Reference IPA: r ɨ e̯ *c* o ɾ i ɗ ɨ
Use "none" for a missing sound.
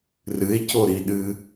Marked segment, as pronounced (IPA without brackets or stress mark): c